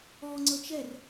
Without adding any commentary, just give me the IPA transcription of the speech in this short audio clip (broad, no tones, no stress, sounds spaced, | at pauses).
ɔ ŋ͡ǀ ɤ t͡ʃ ɛ r